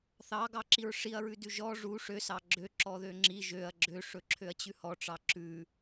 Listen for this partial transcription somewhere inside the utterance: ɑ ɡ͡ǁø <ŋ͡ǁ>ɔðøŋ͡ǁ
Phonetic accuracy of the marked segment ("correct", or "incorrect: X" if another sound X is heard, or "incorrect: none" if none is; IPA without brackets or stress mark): incorrect: ǁ